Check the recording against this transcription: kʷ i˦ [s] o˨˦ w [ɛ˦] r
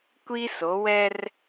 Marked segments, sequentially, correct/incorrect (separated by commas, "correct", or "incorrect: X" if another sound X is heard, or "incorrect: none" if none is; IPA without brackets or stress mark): correct, correct